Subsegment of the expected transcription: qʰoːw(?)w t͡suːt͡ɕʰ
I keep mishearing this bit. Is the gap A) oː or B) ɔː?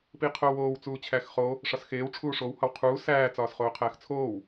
A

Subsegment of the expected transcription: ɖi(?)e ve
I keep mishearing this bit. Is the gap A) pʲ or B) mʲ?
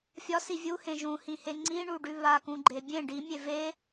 B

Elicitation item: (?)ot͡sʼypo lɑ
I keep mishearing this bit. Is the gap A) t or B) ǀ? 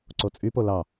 B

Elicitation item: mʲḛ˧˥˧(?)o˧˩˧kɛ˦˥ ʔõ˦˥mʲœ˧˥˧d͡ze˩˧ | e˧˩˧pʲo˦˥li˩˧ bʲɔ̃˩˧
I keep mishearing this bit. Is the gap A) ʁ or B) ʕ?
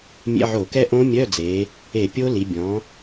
B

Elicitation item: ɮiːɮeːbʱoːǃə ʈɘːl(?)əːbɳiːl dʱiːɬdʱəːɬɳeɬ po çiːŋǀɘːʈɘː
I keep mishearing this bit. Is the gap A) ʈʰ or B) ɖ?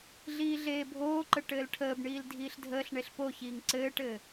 A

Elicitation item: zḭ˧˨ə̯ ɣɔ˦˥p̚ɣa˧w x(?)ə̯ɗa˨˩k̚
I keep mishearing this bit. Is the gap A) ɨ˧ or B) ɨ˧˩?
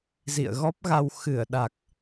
B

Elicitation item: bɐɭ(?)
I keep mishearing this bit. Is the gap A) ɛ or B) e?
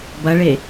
B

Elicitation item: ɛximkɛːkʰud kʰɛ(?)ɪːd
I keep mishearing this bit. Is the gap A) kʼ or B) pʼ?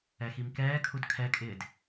A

